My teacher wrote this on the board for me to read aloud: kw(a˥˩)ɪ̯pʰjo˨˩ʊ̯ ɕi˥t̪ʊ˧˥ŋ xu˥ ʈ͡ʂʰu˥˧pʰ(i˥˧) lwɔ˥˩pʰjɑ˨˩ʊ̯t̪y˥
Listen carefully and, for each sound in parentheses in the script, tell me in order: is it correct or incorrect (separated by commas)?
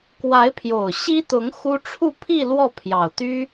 incorrect, correct